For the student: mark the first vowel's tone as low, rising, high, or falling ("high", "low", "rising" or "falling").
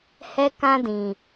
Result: high